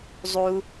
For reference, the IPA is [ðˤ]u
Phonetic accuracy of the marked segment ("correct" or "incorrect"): incorrect